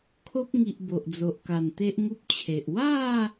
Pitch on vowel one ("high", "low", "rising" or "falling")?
high